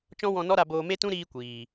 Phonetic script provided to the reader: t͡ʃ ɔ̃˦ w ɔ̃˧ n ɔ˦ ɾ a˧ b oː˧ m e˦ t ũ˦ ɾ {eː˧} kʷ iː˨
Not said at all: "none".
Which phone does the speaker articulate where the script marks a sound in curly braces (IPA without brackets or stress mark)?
iː˧